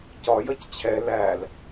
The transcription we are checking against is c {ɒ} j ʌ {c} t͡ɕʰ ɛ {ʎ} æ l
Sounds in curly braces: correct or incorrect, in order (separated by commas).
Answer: correct, correct, incorrect